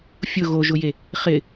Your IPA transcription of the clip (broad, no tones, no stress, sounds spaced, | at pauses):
fʲ ʊ ɣ o ʒ ʊ j e | χ ɪ